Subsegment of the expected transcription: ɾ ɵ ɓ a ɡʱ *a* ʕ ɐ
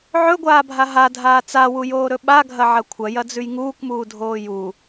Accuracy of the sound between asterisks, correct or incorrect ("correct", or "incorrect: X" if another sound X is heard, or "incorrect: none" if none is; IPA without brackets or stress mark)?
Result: incorrect: ɐ